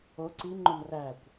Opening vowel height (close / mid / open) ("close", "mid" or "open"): mid